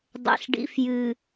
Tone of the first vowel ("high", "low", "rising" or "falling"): low